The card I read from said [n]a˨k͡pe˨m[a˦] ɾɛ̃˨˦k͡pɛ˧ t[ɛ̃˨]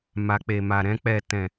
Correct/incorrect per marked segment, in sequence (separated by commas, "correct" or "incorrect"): incorrect, incorrect, correct